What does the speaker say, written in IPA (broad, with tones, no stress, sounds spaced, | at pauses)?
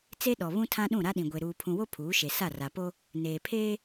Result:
t͡s e˦ ɗ ɔ˨ β ũ˦ tʰ ã˦ ɗ ũ˦˨ ɾ a˦ ɗ ĩ˨ ɡʷ e˨ ɾ uː˨ pʰ ũ˨ w o˦ pʰ uː˨˦ ʃ e˨ s a˦˨ r a˨ p o˦ | n eː˨ pʰ eː˦